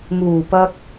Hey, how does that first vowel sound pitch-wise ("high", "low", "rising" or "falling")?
low